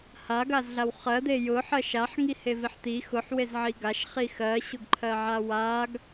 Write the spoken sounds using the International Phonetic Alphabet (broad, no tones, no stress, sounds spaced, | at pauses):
h a ɡ a z ɮ a w χ ɜ d̪ e j ʊ ħ ɜ ʃ a ħ ŋ i h e v i ħ t̪ i x ʊ ħ w e z ʕ i ɡ a ʃ χ i x ɜ ɕ ʊ ɡ ǃʰ ɜ ʕ a w a ɡ